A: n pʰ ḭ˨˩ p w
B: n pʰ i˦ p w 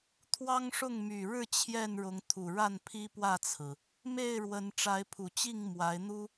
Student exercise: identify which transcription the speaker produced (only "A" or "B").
B